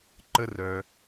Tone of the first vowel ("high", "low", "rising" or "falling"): high